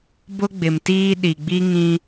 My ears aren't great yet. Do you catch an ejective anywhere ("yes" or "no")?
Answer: no